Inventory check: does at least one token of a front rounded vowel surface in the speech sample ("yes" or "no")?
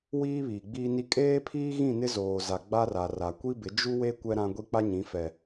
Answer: no